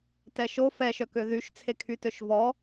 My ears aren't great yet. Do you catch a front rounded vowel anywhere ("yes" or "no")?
yes